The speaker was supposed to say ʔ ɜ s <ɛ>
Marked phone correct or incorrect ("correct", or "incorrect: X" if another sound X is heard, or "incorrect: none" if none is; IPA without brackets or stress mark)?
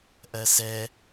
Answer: correct